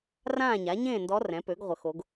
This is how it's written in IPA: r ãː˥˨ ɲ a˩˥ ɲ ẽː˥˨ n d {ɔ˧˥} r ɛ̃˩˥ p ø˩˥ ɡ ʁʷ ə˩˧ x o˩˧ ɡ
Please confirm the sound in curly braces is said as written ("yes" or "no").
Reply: yes